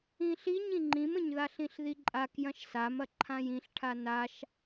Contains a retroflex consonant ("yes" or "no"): yes